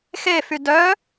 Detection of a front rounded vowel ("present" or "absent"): present